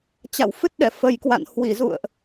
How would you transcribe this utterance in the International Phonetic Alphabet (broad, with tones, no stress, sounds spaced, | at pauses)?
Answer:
t͡ɕ a̰˧˨ w f ɨ˦˥ t̚ ɗ ɛ˧˩ f ə˨˩ j k w a̰˧˨ n h w i˧˩ z ṵ˧˨ ə̯ ʔ